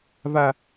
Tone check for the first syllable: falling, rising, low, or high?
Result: high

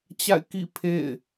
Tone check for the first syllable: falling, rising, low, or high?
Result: falling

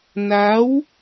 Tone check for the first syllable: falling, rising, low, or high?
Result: rising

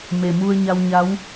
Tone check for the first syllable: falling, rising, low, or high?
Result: low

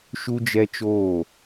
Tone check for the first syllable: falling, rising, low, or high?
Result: high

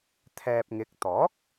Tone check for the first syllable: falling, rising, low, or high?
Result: low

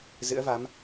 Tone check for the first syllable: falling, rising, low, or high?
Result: rising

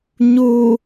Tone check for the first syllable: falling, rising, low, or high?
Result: low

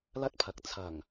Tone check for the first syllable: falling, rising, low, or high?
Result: high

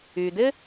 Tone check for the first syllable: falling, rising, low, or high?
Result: low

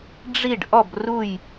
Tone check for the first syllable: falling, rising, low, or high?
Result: falling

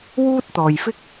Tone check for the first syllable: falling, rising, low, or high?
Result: high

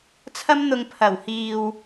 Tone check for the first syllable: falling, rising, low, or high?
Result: high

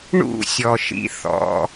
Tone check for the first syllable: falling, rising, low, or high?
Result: falling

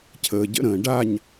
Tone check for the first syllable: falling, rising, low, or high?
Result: low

